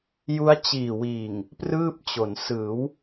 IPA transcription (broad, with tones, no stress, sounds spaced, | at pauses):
j u˦˥ a̯ t͡ɕ iː˨˩ w iː˨˩ ŋ | p r ɯː˥˩ p̚ t͡ɕ o˩˦ n s ɯː˩˦ w